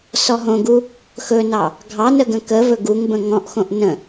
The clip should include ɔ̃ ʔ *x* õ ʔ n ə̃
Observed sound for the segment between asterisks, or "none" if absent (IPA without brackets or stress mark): x